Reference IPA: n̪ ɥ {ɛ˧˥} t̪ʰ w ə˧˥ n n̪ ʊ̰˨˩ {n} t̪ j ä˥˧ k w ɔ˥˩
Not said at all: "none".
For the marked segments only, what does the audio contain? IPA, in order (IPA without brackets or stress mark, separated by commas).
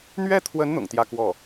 ɛ˥, ŋ